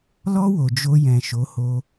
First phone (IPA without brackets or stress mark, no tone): l